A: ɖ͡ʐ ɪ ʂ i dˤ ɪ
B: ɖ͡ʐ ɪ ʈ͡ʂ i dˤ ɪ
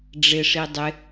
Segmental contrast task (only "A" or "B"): A